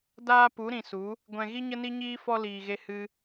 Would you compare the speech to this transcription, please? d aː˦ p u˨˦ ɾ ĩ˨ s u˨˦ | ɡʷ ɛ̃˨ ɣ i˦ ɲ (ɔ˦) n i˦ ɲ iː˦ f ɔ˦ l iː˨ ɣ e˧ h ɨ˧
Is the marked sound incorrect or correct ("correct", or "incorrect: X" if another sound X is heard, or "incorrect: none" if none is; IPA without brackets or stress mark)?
incorrect: ə˦